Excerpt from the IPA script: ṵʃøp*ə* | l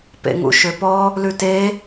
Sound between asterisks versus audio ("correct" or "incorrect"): incorrect